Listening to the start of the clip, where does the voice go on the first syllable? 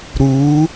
rising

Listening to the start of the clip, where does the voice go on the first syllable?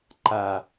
low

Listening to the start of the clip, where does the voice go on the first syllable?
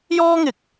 high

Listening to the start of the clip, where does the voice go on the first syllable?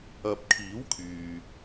low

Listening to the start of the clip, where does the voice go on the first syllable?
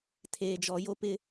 low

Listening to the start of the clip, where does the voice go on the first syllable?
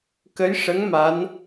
rising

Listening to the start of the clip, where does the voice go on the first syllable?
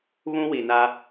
high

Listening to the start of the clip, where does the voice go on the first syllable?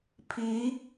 rising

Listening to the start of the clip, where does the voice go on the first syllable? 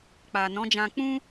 low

